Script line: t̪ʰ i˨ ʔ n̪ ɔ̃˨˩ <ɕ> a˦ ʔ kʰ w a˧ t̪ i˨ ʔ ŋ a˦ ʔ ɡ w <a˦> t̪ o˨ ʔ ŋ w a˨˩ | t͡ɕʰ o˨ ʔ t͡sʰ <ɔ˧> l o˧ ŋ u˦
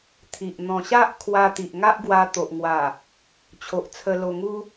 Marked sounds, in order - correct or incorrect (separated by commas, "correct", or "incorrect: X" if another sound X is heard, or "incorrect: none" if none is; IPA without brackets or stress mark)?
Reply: correct, incorrect: a˧, incorrect: ə˧